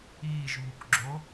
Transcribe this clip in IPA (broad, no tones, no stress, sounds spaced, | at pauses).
iː ʒ β u k ɡ͡ǁ o